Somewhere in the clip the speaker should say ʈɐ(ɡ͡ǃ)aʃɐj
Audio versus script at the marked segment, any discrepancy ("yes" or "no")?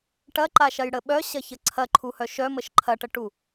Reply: yes